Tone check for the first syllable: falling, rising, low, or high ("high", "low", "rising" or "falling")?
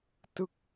falling